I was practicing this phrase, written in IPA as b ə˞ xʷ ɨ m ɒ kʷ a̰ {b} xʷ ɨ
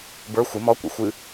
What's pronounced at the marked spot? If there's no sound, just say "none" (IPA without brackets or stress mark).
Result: none